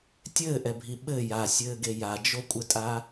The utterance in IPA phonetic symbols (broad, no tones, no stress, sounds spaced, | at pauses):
tʲ ɘː ʔ ɛ bʱ i ɓ ɘ j a sʲ ɘː ɡ e j a d͡ʒ o kʷʼ ɘ tʼ a